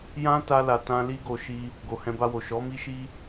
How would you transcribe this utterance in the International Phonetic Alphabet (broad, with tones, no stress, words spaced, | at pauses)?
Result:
jã˦ ta˧la˨ tã˧ li˦ ɡo˧ ʃi˦ | ɡo˨hɛ̃˧ba˧wo˨ ʃɔ˨˦mi˦ʃi˦